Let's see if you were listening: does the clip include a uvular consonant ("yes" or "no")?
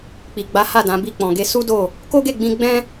no